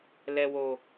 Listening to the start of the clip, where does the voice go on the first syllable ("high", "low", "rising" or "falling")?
low